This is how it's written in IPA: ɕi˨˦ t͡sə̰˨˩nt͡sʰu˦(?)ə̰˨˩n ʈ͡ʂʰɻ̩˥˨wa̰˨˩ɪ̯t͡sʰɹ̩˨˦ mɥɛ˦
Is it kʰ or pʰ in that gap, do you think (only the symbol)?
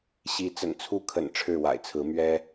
kʰ